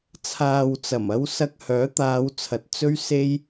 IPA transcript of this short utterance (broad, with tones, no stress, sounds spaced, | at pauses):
t͡sʰ aː˨ w t͡s ɐ˨˩ m ɐ˧ w s ɐ˧ k̚ h œː˨˥ t̪ aː˨˧ w t͡sʰ ɐ˨ t̚ t͡s ɵ˥ ɥ s e˥ j